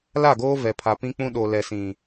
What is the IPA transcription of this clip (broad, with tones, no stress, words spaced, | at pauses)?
la˦˨ɡoː˦vɛ˨ pʰa˨ pĩ˦ k͡pũ˦ ɗo˨lɛ˨sĩ˨